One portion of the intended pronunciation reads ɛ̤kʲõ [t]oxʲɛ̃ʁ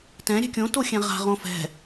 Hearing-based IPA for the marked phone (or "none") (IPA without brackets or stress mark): t